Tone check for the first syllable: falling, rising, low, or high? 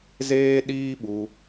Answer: high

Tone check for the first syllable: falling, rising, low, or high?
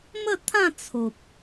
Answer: falling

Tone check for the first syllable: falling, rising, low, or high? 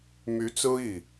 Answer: rising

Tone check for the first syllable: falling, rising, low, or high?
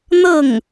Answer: falling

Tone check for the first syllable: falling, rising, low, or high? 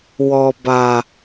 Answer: low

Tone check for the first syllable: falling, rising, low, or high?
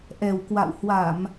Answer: low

